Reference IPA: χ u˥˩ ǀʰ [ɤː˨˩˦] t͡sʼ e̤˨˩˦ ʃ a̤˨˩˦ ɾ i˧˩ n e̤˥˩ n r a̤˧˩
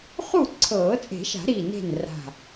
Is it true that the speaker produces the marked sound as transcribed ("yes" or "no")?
yes